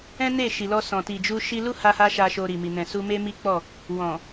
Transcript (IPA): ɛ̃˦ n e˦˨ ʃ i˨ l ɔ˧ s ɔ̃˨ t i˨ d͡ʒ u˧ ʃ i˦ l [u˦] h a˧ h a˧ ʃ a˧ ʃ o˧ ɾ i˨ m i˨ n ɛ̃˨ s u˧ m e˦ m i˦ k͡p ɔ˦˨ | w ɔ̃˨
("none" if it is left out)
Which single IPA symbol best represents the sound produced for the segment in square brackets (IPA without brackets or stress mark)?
u˦